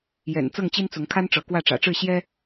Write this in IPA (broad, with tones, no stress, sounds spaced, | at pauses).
j ɛ̰˨˩ n t͡s ɤ˥˨ ŋ t͡ɕ i˦ n t͡s ʊ˨˦ ŋ kʰ a˦ n ʈ͡ʂ ɤ˨˦ k w ä˥˨ ʈ͡ʂ ä̰˨˩ ʈ͡ʂ ɻ̩˥˨ ɕ j ɛ˦